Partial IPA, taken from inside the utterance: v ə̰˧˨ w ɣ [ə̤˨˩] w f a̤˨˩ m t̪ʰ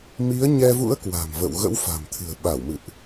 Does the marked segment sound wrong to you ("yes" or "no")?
yes